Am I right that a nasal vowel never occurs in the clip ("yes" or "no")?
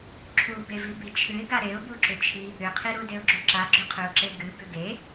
yes